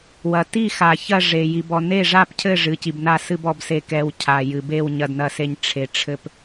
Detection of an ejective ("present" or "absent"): absent